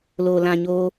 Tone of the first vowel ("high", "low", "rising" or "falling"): low